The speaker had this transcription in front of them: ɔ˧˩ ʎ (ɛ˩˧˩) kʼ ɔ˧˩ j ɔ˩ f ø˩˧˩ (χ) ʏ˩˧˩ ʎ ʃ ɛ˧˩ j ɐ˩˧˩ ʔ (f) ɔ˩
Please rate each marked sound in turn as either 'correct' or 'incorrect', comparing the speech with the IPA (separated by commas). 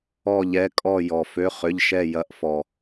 correct, correct, correct